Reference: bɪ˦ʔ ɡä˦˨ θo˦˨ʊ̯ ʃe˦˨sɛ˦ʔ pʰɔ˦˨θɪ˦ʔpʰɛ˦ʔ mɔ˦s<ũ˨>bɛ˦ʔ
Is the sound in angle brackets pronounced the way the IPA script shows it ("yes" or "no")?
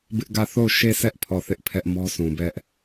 yes